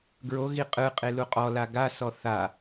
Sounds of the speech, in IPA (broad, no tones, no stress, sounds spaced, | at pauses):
ɡ ɹ o ɣ i qʼ ɯ qʼ e l u qʼ ɔ l a ɡ a s ɔ θ a